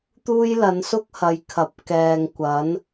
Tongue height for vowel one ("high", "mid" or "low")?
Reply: high